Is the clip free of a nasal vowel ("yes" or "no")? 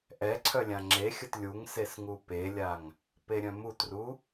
no